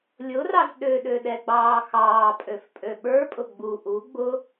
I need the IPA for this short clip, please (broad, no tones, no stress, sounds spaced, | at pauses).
lʲ ʊ r ɑ z ɗ ø ɗ ø ɗ ɛ ɡ͡b ɑː x ɑː pʼ ø f pʼ ø ɓ ə˞ pʼ ʊ ɡ͡b u ʔ u ɡ͡b ʊ